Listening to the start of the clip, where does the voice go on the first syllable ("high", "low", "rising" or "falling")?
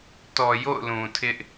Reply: low